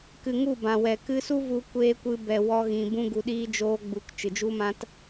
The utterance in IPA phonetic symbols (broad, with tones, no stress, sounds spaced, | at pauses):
k ɨ˨ ŋ u˦˨ b ã˨ w ɛ˨ k ɨ˧ s u˦ v u˧ kʷ eː˧ kʷ ɨ˧ b ɛ˨ w ɔ˦ ɣ ĩ˧ b ũ˦ ɡ u˧ ɗ iː˦ d͡ʒ oː˦ ɡ͡b u˧ k t͡ʃ ɨ˨ d͡ʒ u˦ m ã˦ t